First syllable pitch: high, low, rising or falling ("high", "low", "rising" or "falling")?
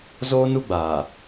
high